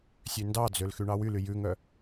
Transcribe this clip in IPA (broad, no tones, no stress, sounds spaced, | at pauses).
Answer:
sʲ ø n d ɑ d͡z ø l x y ɳ ɑ w y l y j ʉ ŋ œ